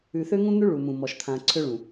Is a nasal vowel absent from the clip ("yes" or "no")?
no